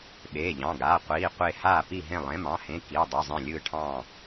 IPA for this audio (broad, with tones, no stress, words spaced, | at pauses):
ɓeː˩˧˩ʎɑ̃˩˧˩ɡaː˩˧˩ qʷiː˩˧˩qʷe˧˩ haː˧˩pi˧˩ɦẽ˧˩ lˠẽ˩˧˩mɑ̃˩˧˩hẽ˩˧˩ ki˩˧˩ dˤe˩˧˩zˤẽ˧˩lʲɯː˧˩ ʈʰɑ̃˧˩